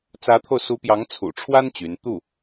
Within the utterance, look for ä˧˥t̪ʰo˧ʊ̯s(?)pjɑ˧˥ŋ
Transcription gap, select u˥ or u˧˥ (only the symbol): u˧˥